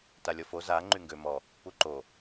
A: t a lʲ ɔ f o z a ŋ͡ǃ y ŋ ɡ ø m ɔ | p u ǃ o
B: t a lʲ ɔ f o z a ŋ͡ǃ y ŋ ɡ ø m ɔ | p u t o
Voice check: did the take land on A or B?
A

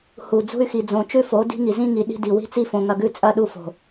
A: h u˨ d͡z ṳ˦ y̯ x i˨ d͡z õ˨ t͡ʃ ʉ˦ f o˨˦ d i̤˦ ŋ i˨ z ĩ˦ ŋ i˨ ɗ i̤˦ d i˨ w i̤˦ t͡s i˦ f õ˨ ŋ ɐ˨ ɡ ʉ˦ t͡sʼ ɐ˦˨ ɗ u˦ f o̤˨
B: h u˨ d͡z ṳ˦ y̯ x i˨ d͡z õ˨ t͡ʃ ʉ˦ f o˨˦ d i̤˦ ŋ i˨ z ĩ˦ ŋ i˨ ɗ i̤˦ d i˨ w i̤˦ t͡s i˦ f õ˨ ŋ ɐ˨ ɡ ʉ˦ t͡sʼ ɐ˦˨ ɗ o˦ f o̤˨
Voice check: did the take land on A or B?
A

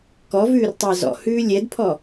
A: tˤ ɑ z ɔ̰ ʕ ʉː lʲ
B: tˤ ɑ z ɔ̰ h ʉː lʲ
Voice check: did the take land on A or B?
B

